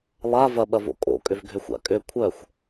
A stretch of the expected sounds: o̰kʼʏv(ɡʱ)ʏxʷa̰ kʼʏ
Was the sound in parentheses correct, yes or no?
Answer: yes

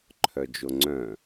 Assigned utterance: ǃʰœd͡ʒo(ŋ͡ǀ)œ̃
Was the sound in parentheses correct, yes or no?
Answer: yes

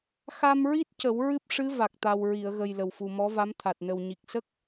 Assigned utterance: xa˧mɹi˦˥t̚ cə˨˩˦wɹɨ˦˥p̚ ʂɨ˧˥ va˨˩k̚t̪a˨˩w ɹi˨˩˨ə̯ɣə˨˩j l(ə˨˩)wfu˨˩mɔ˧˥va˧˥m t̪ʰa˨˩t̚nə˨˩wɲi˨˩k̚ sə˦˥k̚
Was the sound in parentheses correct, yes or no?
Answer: yes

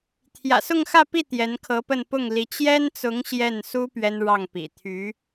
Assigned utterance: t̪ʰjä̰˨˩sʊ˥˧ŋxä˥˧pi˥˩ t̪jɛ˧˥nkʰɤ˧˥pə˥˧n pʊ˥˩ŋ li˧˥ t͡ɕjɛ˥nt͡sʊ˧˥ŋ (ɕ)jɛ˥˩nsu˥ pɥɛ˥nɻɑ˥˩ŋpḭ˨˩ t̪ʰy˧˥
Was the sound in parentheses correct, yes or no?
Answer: yes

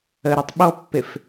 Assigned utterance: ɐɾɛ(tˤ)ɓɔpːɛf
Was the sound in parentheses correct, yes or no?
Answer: yes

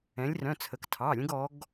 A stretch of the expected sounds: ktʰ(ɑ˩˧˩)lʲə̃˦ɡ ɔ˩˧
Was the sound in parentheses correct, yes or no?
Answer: yes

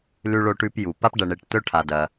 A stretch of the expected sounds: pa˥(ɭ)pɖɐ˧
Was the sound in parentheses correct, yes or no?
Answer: no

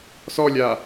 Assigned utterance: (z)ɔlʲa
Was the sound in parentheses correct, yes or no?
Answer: no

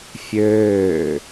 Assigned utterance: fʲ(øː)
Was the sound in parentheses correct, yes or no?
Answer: yes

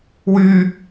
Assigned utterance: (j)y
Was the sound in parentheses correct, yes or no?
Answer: no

